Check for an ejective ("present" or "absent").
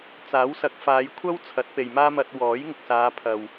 absent